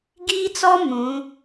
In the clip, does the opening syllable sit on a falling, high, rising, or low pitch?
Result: high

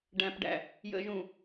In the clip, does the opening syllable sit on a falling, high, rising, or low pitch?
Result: low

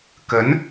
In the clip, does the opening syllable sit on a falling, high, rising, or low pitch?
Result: rising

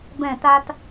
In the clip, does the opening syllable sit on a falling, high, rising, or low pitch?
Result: falling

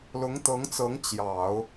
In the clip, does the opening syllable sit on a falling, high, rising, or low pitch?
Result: rising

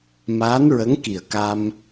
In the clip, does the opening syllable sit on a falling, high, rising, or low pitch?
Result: rising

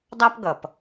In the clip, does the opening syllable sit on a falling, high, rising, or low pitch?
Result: high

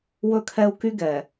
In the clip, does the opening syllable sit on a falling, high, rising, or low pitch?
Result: high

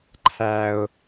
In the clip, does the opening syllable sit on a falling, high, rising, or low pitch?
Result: high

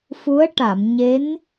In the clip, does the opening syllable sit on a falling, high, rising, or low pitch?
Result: rising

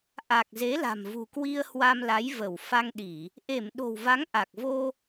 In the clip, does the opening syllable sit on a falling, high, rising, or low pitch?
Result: low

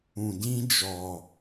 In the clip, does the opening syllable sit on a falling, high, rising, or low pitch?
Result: low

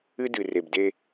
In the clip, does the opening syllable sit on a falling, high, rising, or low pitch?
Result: high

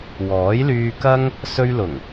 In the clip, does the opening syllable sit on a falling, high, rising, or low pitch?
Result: rising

